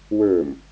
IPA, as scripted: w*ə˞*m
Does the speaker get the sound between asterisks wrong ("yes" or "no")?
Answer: no